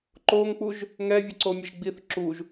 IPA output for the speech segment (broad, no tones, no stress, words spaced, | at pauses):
ǃoŋk͡puʒ | ŋɛvʲʌǀomʲɛʒ ɡ͡biθ ǁuʒ